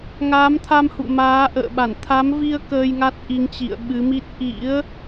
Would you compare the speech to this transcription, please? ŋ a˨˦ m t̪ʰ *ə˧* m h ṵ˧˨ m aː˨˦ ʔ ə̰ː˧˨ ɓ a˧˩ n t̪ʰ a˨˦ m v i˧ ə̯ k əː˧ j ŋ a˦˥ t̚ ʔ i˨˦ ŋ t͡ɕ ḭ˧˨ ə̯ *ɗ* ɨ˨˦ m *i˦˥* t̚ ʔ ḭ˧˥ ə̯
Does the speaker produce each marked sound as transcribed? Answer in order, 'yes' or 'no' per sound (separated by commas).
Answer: no, no, yes